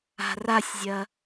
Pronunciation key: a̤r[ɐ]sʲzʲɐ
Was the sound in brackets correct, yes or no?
no